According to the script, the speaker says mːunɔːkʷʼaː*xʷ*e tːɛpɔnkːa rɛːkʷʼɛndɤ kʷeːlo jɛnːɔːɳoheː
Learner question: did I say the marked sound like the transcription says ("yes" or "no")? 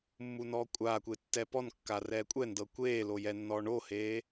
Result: no